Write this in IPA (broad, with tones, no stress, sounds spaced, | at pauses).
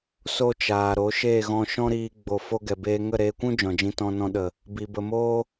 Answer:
s o˦ t͡ʃ aː˨ ɾ o˨˦ ʃ e˦˨ ɣ ɔ̃˧ ʃ ɔ̃˦ ɾ iː˧ ɡ͡b o˧ f o˧ ɡ ɛ˨ b eː˧ ŋ ə˦˨ ɾ eː˧ kʷ ũ˦ d͡ʒ ɔ̃˨ d͡ʒ ĩ˧ t ɔ̃˧ n ɔ̃˧ ɗ ə˨ | b i˧ b ə˧ m oː˦